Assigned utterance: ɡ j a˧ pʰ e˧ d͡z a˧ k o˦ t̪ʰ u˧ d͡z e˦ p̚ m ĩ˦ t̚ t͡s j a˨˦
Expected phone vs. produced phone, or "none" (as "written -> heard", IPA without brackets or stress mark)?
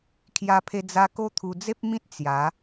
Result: ɡ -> kʰ